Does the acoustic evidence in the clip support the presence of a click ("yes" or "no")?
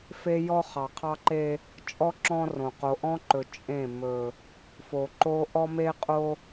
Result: yes